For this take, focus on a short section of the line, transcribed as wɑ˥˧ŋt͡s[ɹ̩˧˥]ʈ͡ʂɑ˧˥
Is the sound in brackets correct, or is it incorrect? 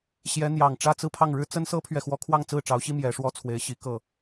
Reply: incorrect